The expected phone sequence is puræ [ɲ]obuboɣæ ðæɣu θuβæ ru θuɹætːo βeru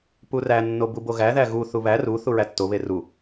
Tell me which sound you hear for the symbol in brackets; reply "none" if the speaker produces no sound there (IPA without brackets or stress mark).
nː